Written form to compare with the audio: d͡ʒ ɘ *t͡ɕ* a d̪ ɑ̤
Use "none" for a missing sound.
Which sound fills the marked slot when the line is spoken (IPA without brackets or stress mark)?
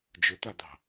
t̪